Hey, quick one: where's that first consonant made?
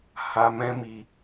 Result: throat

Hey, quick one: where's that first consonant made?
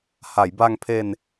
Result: throat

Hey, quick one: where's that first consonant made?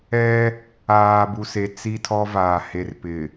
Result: lips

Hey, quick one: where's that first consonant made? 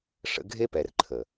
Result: retroflex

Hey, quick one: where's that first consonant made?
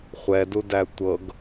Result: uvula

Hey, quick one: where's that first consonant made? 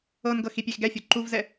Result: tongue tip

